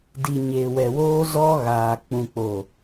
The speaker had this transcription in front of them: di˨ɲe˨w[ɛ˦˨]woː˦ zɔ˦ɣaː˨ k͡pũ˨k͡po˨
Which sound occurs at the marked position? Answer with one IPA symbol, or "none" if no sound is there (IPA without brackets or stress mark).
ɛ˨